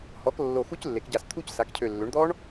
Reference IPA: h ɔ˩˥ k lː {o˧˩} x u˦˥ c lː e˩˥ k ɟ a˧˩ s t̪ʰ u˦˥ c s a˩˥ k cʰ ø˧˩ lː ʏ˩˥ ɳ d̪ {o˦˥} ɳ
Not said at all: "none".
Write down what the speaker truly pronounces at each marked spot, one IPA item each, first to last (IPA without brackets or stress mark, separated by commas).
o˧˩, ɔ˦˥